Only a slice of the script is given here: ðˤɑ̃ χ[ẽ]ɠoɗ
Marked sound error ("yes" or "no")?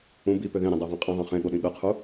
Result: no